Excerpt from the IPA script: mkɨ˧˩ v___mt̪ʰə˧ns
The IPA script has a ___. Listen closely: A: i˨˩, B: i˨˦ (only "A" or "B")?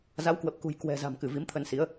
B